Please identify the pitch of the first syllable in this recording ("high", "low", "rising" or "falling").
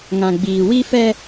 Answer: low